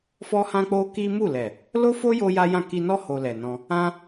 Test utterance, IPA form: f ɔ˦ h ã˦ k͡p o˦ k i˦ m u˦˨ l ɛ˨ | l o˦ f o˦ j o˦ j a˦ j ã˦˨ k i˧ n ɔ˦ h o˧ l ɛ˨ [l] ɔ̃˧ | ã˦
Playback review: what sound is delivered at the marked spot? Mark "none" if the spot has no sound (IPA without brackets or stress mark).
n